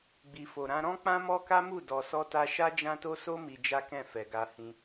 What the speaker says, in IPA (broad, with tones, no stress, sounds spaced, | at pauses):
ɡ͡b i˨ f o˨ ɾ ã˧ ɾ ɔ̃˦ k͡p ã˦ m ɔ˦ k a˦ m u˦˨ d ɔ˧ s ɔ˦ t a˦ ʃ a˦ d͡ʒ ã˦ t o˦ s o˦ m i˧ d͡ʒ a˦ k ɛ̃˦˨ f ɛ˨ ɡ a˧ h ĩ˧